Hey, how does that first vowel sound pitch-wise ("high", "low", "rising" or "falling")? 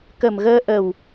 low